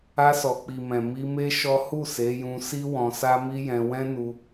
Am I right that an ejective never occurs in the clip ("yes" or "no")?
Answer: yes